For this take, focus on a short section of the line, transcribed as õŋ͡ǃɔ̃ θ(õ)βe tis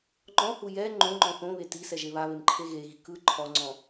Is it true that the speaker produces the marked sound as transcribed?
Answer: yes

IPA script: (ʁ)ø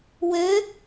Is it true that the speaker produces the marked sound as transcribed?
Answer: no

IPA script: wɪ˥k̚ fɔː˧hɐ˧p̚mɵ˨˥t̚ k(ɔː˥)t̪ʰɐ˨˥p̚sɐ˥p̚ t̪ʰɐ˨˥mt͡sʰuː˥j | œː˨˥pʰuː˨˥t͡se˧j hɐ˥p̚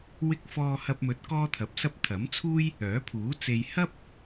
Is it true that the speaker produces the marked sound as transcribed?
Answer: yes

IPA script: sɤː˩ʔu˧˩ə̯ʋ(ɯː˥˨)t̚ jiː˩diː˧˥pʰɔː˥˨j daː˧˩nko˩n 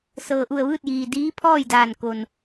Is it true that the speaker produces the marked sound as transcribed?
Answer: yes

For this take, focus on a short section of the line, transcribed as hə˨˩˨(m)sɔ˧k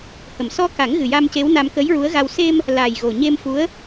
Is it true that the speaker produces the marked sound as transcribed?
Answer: yes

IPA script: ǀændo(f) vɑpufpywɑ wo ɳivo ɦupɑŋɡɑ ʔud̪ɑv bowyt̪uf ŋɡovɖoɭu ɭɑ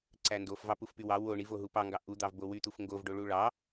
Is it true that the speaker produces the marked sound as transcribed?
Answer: yes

